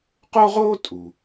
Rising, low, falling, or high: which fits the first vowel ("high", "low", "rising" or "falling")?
high